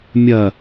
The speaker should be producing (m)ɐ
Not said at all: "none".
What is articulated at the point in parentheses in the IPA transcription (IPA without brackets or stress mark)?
mʲ